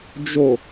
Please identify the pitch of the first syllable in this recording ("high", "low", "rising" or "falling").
low